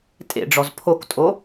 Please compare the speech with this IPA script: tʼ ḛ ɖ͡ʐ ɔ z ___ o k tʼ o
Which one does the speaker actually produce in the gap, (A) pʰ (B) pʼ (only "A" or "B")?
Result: A